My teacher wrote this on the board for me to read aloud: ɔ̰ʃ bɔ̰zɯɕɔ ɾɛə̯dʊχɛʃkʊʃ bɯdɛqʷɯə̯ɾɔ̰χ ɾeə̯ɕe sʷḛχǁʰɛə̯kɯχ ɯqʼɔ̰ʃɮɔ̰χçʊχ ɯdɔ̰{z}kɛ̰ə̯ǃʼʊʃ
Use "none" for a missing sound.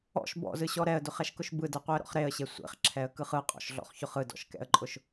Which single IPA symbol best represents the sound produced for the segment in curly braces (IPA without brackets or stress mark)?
ʃ